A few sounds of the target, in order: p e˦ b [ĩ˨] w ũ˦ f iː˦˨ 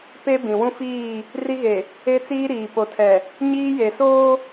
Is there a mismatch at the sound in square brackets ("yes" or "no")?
no